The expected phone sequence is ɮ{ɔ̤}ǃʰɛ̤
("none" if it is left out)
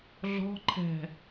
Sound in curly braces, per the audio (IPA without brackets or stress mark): ɔ̤